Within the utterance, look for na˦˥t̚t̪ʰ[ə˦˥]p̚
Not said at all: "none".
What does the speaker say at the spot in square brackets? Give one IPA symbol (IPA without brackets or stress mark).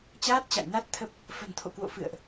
ə˦˥